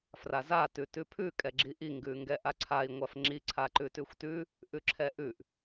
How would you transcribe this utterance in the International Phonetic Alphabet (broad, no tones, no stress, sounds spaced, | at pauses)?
f r a z a t ʉ t ʉ pʰ ʉ kʼ ɛ ɡ͡ǁ i ʔ i ŋ ɡ ʉ ŋ ɡ ɛ ʔ a ǀʰ a i̯ ŋʷ a f ŋ͡ǁ i ǀʰ a ǃ ʉ t ʉ xʷ t ʉ | ʔ ʉ ǁʰ ɛ ʔ ʉ ʔ